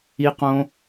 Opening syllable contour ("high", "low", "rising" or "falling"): high